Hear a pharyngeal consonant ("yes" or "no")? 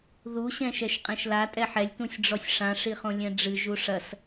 yes